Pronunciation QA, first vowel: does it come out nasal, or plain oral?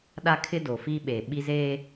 oral